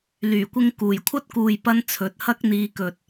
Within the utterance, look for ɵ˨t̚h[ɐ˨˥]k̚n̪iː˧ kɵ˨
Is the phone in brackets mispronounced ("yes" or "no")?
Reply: yes